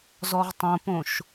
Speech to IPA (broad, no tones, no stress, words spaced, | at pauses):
zɔʁtˤõpõʃ